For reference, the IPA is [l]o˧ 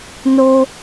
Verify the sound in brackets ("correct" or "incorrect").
incorrect